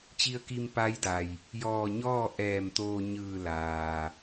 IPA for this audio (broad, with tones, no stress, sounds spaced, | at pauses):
t͡ɕ i˧ ə̯ k i˧ m p a˧˥ j d a˩ j | j ɔː˧˩ ɲ ɔː˥˨ ʔ ɛː˧˩ m t̪ oː˧ ɲ ɯː˧˩ l aː˩